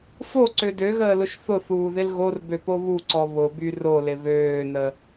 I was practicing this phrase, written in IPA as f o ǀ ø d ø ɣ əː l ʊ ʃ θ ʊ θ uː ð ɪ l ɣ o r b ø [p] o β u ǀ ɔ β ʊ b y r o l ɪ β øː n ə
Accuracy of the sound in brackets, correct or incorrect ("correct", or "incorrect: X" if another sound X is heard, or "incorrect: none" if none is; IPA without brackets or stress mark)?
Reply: correct